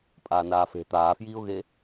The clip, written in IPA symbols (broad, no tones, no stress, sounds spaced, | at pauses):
pʼ aː n aː f e̤ t̪ aː f j iː ʊ̯ ɣ e